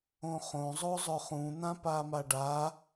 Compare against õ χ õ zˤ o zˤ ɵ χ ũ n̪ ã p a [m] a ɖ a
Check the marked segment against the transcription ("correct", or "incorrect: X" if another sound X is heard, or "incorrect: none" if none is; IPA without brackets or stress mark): correct